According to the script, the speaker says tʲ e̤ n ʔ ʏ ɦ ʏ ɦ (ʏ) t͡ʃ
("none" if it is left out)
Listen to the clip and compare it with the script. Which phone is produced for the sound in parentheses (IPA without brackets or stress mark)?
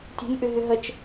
ə